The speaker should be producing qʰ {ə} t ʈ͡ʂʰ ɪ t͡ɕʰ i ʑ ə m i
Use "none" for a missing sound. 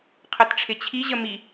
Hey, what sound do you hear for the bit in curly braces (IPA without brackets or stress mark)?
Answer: ə